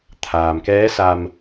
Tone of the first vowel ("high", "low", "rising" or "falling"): low